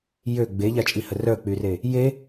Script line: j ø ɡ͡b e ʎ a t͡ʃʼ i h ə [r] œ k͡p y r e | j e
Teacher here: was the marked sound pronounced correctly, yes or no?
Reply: yes